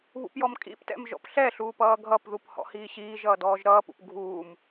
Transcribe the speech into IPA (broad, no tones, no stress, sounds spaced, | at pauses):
β ṵ p j ɔ m kʼ ḭ p t ɛ̰ m ʒ ɔ̰ p ɬ ɛ ɬ uː p ʌː ɡʱ ʌ p ð u p h ɔ̰ h iː ɕ iː ʒ ʌː d ɔː ʒ ɾ ʌː p ṵ p ɡʱ uː m